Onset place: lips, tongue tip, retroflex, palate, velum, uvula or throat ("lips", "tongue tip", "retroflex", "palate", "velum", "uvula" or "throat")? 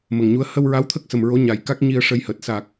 lips